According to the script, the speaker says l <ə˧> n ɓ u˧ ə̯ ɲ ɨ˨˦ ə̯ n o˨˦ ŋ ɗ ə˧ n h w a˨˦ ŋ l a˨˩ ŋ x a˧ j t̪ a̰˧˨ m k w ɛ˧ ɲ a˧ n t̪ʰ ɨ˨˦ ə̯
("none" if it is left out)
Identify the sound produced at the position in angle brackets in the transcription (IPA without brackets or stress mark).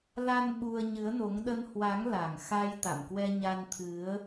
a˧